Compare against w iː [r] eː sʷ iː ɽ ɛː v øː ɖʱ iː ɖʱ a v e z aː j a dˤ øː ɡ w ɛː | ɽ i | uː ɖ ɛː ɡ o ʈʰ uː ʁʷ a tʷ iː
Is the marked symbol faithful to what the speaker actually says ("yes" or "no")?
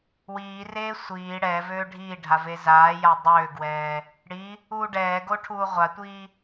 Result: yes